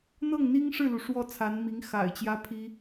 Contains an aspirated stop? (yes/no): yes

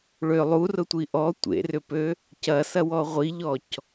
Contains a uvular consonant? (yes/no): yes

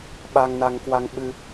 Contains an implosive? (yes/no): yes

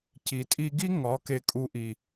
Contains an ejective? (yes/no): yes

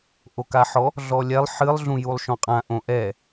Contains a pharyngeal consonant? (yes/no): yes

